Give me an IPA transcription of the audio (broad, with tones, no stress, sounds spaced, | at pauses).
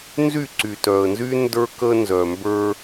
n z y˦˨ ǀ y˨ t œ˨ ə̯ n z y˦ n d ə˞˦ k ə˦ n z œ˨ m b ə˞˦